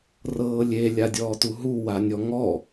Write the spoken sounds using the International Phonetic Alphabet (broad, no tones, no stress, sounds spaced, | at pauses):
r ɤː lʲ e lʲ a dʲ ɔː t u ɦ u w a nʲ ɔ ŋ ɔ